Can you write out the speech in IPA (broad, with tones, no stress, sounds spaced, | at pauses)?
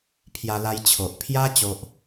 pʰ j a˧ l a˧ j t͡ɕʰ o˨ ʔ pʰ j a˦ t͡ɕ o˦ ʔ